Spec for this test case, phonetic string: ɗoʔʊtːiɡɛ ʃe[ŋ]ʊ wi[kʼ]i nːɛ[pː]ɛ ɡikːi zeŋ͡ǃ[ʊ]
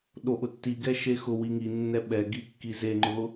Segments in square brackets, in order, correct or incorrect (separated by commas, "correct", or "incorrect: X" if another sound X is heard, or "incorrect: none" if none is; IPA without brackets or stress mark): incorrect: x, incorrect: ŋ, incorrect: ɓ, correct